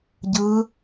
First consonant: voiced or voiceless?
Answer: voiced